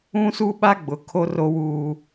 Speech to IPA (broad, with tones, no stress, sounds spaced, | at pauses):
ũ˦ s u˦ ɓ a˦ ɡ͡b ʊ˨ kʰ o˦ r o˦ w uː˦